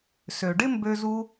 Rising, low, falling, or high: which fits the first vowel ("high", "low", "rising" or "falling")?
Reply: low